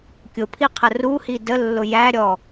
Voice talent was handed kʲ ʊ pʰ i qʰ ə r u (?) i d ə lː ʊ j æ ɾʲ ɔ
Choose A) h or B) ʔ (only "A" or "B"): A